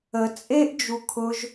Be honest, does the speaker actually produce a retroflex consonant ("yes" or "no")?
no